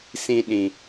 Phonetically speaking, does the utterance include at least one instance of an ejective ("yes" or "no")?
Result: no